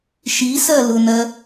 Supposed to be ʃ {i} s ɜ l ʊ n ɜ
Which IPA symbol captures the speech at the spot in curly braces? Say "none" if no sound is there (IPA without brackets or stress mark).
i